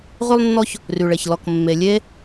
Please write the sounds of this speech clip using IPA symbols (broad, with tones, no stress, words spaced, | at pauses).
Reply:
ʁy˥lˠnːɔ˥ç | ry˩ɭe˩ç lɔ˩kmːe˩lʲe˥